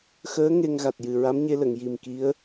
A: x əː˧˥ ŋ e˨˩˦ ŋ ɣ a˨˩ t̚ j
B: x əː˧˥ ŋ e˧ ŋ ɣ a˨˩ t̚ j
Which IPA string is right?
B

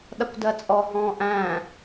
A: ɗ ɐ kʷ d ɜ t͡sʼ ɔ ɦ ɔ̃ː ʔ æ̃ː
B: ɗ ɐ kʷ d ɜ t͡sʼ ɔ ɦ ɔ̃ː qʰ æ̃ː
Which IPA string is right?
A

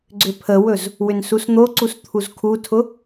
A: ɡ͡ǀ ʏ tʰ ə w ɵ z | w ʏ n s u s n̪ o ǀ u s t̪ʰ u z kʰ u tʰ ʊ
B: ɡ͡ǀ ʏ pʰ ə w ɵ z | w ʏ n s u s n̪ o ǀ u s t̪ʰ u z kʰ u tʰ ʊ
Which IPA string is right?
B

